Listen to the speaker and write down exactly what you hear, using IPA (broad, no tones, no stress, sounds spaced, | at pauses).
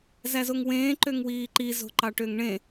z æ z o ŋ w ẽː ǃ ø ŋ w iː ǃ i z o̤ ǃ ɑ ʈ ø ŋ ɳ ẽ